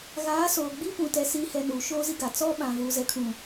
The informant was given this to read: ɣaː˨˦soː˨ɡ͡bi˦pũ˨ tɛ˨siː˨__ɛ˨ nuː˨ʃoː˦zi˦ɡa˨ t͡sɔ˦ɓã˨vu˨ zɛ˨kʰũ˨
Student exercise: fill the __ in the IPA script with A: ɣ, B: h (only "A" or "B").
B